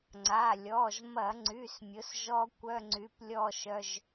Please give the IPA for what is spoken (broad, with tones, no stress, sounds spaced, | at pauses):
ŋ͡ǀ a˩˧˩ lʲ ɔ˩˧˩ ʒ m ɐ˧˩˧ ŋ͡ǀ y˩˧˩ s mʲ ʊ˩˥ s ʒ ɔ˦˥ kʷ œ˧˥˧ ŋ͡ǀ y˩˥ p lʲ ɔ˦˨ ʃ œ˩˧˩ ʒ